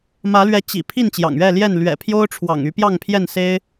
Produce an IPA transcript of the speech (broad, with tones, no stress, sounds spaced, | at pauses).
m ä˨˦ l ɥ ɛ˨˦ t͡ɕ ḭ˨˩ pʰ i˥˨ n t͡ɕ j ɑ̰˨˩ ŋ ɥ ɛ˥˨ l j ɛ˥˨ n l ɥ ɛ̰˨˩ pʰ j o˦ ʊ̯ ʈ͡ʂʰ w ɑ̰˨˩ ŋ y˨˦ p j ɑ˥˨ ŋ pʰ j ɛ˥˨ n s e˦ ɪ̯